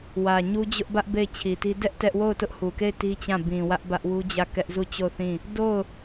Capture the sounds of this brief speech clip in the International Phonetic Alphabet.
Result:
w ä˨ ɲ u˦ d͡ʑ ʊ˦ ʔ b ä˦ ʔ b e˦˨ ɪ̯ t͡ɕʰ i˨ t i˦ d ɛ˦ ʔ t ɛ˦ ʔ w o˦˨ ʊ̯ t ʊ˦ ʔ h u˨ k e˦˨ ɪ̯ t i˦ t͡ɕ ã˦˨ b ĩ˨ w ä˦ ʔ b ä˦ ʔ w u˦ d͡ʑ ä˦˨ k ɛ˦ ʔ z u˦˨ t͡ɕ o˦˨ ʊ̯ θ ĩ˦˨ | d o˦˨ ʊ̯

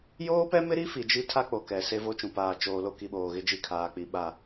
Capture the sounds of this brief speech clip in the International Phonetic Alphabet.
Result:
j oː˦ p ɛ˦ m ɪ˦ ɾ i˦ f i˨ d͡ʒ i˦ tʰ a˦ k͡p o˨ k ɛ˨ s e˦ v o˦ t͡ʃ ũ˨ p aː˨ t͡ʃ oː˨ l o˦ k i˨ ɓ oː˨ ɣ ɪ˦ d͡ʒ i˦˨ kʰ aː˨ k͡p i˨˦ ɓ a˦˨

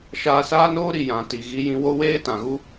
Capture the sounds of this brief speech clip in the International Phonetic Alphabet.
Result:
ʃ aː˧ s aː˦ n oː˦ ɾ i˨ j ã˨ t i˨ ɣ i˧ j ĩ˧ w o˦ w eː˦ t ã˨ ɣ u˦

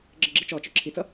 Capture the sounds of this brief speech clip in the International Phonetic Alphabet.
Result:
ɡ͡ǁ ə ɡ͡ǁ i t͡ʃ ɔ t͡ʃ ə˞ ǁʰ i t͡s ʌ

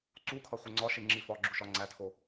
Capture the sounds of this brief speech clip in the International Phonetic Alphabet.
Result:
ǀ u kʰ ɒ χʷ e ŋ͡ǀ ɒ ʃ e ŋ͡ǁ i f ɒ ɡ͡ǁ u ʃ ɒ ŋ͡ǀ æ tʰ o

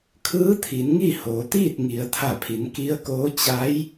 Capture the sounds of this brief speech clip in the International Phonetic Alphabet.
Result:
kʰ ɯː˧˥ t̪ʰ i˩˧ n ŋ i˥˨ h oː˩˧ t̪ iː˥˨ t̚ ŋ i˩˧ ə̯ t̪ʰ a˧˩ pʰ i˩˧ n k i˧˥ ə̯ k oː˧˥ t͡ɕ a˧˥ j

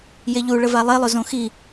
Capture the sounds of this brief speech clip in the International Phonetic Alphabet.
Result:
j e ʎ u ɭ ə v a lˠ e lˠ ʊ z õ x i

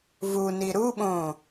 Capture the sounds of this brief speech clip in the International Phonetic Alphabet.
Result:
v u n i ɾ u ɓ õ

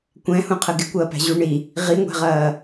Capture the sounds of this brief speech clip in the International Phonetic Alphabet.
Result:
kʷ ɛ̃ h ũ qʰ ə ɡ ɪ kʷ ɐː p æ̤ ʑ u ɳ i | ʁ i ŋʷ æ̤ ʁ ɐː

